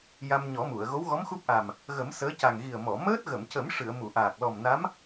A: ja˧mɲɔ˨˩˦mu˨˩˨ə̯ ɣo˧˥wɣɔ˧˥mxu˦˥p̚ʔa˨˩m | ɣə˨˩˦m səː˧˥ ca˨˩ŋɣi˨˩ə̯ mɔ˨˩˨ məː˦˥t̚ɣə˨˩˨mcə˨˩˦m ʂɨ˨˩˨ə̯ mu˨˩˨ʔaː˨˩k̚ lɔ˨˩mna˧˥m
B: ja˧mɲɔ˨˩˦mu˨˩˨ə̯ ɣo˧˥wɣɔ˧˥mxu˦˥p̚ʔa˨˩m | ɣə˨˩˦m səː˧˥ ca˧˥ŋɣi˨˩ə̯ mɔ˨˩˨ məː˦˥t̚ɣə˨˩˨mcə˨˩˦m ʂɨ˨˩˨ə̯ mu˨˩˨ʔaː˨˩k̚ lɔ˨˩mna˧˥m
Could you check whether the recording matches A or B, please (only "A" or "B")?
A